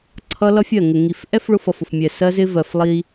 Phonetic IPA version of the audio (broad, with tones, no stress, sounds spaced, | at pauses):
ǀʰ ʌ˦ l ʌ˦ fʲ ɜ˦˨ ŋ ɪ˨ ŋ i˨ f ʔ ɛ˦ f ɭ ʊ˦ f ʌ˨ f ʊ˨ f mʲ ɛ˨ s ɜ˦ z ɪ˦ v ɜ˨ f lˠ i˦